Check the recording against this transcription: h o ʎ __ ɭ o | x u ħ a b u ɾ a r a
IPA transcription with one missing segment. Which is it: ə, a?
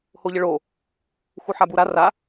ə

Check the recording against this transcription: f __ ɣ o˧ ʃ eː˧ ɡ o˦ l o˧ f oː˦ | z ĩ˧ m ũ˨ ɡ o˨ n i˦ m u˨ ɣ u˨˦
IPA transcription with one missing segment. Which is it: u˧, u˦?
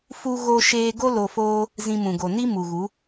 u˧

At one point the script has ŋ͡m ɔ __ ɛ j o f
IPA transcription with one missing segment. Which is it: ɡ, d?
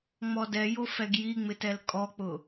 d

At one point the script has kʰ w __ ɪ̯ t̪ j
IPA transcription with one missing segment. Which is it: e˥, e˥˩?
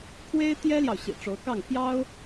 e˥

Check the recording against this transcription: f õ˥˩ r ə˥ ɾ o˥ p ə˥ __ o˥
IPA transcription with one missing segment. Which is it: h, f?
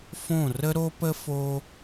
f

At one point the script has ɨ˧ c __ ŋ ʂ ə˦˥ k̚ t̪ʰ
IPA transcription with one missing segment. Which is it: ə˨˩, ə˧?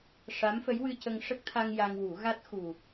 ə˧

